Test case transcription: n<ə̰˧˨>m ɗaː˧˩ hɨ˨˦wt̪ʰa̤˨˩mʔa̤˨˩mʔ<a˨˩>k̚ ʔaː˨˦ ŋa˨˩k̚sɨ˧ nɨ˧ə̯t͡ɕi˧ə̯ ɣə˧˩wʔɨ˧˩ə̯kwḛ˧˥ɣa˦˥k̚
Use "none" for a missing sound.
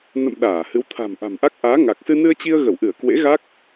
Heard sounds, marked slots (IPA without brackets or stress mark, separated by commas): ə̰˧˨, a˦˥